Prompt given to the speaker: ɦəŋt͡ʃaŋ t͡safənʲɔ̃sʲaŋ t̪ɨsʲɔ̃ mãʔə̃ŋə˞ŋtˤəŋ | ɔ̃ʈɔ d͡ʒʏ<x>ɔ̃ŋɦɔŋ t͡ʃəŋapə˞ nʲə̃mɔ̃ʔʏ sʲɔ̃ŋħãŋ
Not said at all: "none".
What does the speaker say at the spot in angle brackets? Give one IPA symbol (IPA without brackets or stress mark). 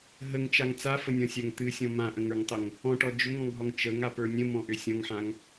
ŋ